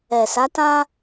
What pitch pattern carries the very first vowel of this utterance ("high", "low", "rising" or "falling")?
low